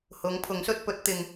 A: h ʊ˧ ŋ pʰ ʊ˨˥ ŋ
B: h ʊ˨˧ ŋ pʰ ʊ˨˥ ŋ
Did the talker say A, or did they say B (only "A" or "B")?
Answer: B